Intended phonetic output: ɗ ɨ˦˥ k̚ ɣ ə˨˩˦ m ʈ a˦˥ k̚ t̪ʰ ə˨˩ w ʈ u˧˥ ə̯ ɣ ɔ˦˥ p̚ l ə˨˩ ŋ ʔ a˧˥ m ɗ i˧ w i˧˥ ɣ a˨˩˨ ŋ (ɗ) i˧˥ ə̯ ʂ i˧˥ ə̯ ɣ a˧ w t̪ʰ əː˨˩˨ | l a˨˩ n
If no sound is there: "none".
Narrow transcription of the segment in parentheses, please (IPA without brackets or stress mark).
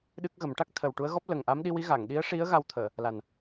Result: ɗ